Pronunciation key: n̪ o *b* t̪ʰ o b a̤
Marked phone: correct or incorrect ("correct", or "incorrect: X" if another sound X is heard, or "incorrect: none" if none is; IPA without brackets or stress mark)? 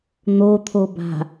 incorrect: none